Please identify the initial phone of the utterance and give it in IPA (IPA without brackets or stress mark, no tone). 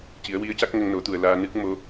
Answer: c